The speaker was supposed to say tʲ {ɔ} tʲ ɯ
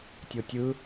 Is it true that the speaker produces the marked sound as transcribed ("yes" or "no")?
no